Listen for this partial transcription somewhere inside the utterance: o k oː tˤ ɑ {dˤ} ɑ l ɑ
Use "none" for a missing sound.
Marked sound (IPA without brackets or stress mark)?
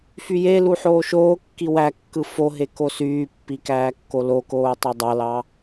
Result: dˤ